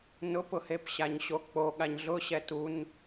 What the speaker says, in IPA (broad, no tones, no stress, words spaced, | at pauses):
nʊpʊhep ɕaɲɕok͡po ɠaɲɮʊ ɕɛtun